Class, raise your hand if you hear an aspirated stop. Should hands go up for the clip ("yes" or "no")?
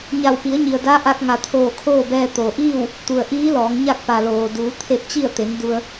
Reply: yes